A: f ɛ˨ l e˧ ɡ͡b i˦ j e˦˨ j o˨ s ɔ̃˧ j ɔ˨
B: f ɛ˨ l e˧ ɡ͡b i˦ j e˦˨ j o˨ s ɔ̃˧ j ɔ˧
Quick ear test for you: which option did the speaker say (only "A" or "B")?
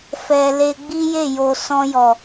A